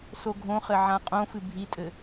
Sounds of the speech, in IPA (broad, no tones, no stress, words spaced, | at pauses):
soɡʱõχɘ ʕãqʼõfɨ bʱitʼɘ